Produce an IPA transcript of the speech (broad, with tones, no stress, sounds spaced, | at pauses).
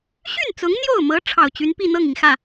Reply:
ɕ y˥˩ n t͡s ʊ˧˥ ŋ n̪ j o˥˩ ʊ̯ m ɤ˧˥ ʈ͡ʂʰ ɑ˨˩ ʊ̯ t͡ɕ y˧˥ n p i˥˧ n̪ ɤ˥˩ ŋ i˩ ŋ x ä˥˩